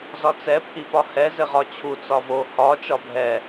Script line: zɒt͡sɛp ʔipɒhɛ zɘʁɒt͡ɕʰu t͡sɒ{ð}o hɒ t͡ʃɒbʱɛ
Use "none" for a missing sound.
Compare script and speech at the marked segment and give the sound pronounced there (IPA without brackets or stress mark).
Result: v